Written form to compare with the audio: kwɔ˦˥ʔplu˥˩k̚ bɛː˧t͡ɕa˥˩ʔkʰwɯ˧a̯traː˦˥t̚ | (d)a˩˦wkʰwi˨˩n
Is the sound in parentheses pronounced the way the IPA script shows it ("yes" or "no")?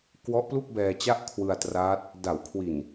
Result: yes